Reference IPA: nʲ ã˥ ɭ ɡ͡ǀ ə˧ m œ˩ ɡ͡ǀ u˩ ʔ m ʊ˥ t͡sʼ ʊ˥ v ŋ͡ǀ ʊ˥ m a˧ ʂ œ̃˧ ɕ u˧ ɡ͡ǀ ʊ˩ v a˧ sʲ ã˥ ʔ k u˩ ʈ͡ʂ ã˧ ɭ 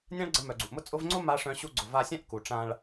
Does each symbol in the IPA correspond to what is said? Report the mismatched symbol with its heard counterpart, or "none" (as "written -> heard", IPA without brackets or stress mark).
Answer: none